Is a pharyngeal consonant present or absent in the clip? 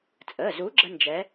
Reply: absent